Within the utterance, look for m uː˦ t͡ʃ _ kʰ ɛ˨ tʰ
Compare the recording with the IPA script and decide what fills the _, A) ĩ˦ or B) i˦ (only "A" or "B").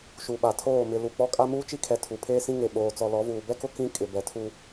B